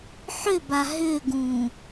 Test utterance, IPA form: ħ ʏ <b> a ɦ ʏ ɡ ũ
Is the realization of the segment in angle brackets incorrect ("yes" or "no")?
no